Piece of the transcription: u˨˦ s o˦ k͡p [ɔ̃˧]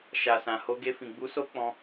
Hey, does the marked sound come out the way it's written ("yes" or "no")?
yes